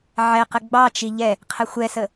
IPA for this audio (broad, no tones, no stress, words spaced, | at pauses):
ʕɛqə ɡ͡bɑt͡ʃi ʎɛ | qʰəxʷɛsə